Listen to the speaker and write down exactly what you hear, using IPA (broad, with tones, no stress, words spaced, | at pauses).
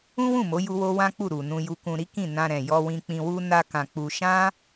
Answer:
ũ˦wũ˦˨mo˨˦ju˧ wo˦wã˦k͡pu˦˨ ɾu˨nũ˧ju˧kũ˧ ɾi˦kĩ˦˨nã˧ ɾɛ̃˨jɔ˧wĩ˧k͡pĩ˧ wu˦ na˧ kã˧k͡pu˧ ʃã˦